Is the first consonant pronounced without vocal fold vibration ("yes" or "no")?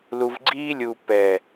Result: no